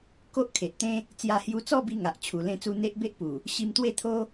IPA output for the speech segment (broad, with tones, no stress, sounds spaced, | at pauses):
k o˦ ʔ kʰ e˨ ʔ t̪ ẽ˦ | t͡s j a˧ h j u˧ t͡s ɔ˥˧ b i˧ ŋ a˨ ʔ t͡ɕʰ u˨˩ l ẽ˧ t͡s u˧ n̪ e˦ ʔ b e˦ ʔ p u˨˩ | ɕ i˧ m t̪ w e˥˧ t̪ʰ o˦